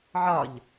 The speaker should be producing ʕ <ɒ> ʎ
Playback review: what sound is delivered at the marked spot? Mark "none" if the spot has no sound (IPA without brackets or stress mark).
ɒ